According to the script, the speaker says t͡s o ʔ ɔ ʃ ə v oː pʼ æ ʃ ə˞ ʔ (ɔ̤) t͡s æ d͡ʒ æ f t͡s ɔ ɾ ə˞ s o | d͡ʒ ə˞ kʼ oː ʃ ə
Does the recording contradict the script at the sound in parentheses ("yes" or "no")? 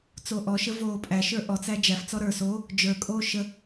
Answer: yes